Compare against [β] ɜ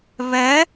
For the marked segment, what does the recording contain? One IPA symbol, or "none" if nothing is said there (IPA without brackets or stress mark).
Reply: β